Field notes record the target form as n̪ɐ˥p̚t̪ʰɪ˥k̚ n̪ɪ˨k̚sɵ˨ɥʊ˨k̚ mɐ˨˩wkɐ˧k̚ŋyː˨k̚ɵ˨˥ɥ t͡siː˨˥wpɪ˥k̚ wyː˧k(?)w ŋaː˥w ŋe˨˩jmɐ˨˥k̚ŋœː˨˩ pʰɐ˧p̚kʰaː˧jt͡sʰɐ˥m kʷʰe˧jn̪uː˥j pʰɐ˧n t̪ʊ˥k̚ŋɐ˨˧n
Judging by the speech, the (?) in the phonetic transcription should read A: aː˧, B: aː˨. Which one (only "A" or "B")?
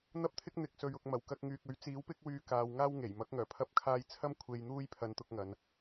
B